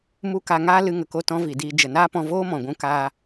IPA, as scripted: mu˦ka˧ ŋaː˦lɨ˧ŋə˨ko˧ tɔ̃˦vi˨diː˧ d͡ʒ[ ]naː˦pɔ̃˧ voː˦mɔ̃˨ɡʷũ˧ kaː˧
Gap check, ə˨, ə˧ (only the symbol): ə˨